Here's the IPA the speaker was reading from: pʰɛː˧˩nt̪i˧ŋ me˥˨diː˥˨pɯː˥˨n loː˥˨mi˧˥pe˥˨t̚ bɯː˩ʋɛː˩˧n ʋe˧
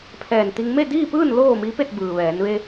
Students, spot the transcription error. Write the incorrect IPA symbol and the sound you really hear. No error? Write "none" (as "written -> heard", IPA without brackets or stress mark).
none